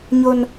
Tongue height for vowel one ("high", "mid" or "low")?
mid